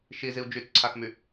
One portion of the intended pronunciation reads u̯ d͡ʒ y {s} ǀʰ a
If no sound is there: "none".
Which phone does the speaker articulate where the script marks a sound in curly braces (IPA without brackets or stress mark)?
t͡s